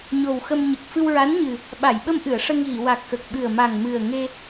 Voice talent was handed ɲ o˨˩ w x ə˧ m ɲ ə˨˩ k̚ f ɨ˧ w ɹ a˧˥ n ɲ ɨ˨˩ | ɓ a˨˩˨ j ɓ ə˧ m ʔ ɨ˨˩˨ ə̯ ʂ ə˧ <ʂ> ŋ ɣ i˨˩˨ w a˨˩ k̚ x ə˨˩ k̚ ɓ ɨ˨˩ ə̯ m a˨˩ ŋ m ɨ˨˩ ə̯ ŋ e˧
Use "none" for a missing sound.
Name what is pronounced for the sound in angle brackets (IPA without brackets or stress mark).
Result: none